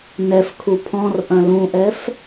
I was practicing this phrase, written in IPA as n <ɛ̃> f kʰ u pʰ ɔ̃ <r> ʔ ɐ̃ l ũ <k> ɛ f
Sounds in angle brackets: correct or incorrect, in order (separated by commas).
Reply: incorrect, correct, incorrect